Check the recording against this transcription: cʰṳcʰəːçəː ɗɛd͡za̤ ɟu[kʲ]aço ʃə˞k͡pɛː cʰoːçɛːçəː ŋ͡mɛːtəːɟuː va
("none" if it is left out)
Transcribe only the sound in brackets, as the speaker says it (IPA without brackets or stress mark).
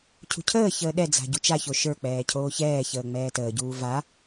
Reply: t͡ʃ